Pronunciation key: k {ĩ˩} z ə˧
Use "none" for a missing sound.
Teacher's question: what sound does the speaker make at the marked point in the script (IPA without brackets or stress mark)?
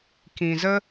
ĩ˩